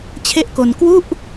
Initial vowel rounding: unrounded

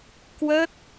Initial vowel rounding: unrounded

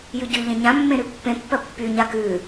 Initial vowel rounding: rounded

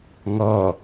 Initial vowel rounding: rounded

